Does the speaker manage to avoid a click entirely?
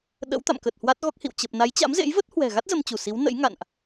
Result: yes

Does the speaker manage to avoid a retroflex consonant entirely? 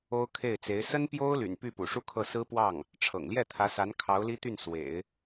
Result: no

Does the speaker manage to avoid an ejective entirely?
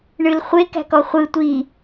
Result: yes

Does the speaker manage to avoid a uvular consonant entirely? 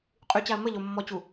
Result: no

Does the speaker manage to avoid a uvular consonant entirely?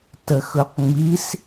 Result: no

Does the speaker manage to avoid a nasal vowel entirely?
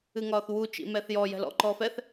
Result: yes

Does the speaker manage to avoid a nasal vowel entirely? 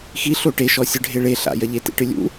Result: yes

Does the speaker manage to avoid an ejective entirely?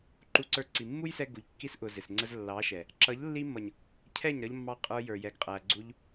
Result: no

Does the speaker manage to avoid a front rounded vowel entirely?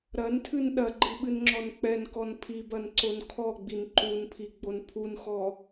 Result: yes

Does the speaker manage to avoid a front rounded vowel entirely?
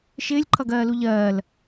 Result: yes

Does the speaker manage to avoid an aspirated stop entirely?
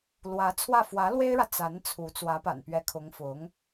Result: no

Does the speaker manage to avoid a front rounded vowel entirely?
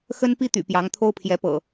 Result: no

